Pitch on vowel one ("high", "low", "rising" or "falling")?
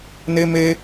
high